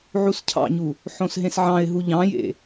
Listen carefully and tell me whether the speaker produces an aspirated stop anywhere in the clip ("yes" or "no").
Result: yes